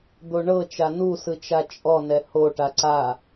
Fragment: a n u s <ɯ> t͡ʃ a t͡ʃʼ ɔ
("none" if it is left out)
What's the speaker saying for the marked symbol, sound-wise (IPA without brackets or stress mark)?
ɯ